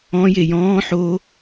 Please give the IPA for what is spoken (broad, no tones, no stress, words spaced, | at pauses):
ɔ̃ jejɔ̃ː ħo